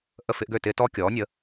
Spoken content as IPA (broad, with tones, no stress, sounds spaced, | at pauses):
ʔ ə˧˩ f ɪ˧ ʔ ɡ ø˧˩ t ɪː˧ t ɔ˧ kʲ ɔː˩˧ nʲ ə˩˧